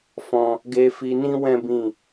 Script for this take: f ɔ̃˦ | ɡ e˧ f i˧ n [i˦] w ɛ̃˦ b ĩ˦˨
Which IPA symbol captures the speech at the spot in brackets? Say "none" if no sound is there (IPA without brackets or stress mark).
ĩ˦